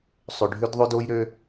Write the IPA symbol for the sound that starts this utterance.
sˤ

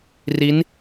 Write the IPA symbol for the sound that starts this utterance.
r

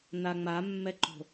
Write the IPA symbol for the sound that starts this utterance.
n̪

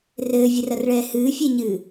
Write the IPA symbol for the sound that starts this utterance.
r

